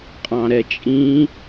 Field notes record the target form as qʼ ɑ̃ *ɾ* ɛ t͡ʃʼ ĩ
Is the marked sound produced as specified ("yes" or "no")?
yes